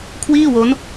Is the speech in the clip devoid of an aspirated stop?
no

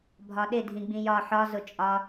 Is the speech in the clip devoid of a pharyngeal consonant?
no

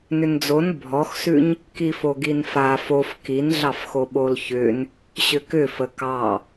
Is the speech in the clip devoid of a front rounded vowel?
no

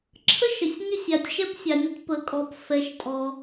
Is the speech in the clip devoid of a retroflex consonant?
yes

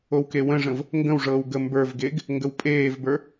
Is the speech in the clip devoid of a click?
yes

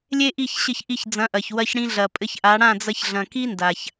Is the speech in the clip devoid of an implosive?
yes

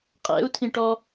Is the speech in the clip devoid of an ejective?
no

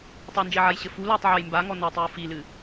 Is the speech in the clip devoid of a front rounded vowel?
yes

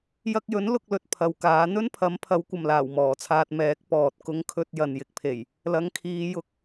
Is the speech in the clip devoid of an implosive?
yes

